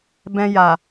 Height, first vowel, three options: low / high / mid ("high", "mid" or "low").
mid